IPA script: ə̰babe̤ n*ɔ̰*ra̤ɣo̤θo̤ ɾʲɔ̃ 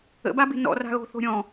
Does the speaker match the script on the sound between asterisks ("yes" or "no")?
yes